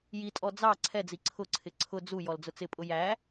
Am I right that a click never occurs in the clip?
no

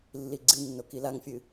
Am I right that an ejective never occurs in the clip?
yes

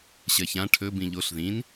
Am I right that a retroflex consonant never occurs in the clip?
no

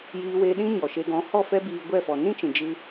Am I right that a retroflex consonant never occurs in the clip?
yes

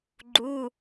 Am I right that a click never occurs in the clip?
no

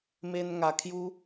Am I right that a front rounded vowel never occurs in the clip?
yes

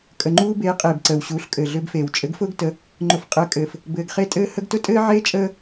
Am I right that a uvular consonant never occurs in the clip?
no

